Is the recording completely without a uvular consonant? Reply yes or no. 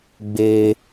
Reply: yes